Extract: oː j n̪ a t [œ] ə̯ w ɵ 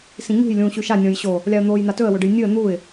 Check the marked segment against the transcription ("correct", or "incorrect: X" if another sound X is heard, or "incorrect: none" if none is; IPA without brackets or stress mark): incorrect: ɵ